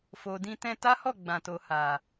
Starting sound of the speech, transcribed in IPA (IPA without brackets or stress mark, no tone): f